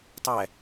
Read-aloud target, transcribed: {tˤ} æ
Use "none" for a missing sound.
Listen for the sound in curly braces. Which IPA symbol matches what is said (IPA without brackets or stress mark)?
tˤ